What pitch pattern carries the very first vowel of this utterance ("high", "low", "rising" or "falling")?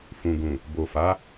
low